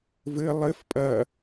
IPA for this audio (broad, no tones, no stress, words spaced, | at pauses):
vɘ lˠɘf pʼɐ